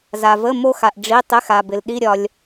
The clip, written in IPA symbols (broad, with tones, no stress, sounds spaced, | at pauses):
z a˨ v ə˧˥˧ m o˥ x a˨ ʔ ɖ͡ʐ i˧˥˧ tˤ ɪ˧˥˧ x a˨ b ɪ˨ l ɗ i˧˥˧ ɾʲ ɒ˨ lʲ